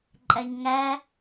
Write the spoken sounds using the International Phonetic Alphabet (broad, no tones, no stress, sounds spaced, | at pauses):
ǃʼ æ ɲ ŋ æ